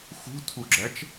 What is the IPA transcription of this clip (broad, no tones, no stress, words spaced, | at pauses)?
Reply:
xṳtʰuɡ͡ǁæt͡ʃ